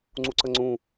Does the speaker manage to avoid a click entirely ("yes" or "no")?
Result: no